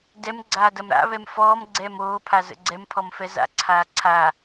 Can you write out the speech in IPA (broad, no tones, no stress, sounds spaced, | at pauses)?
d ɛ m ɡ͡ǀ aː d ɐ m ɾ a̰ β ɛ m f ɔː m ɡ͡ǀ ɛː m oː pʰ a z ə̰ ɡ͡ǀ ɛ m pʰ ɔ m f ɛ z a̰ ǀʰ aː ǀʰ a